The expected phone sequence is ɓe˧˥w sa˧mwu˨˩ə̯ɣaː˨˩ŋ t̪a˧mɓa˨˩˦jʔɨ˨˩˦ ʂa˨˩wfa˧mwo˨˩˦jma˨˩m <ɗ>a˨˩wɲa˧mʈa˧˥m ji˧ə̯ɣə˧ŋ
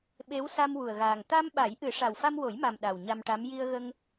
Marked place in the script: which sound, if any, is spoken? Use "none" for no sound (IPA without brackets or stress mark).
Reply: ɗ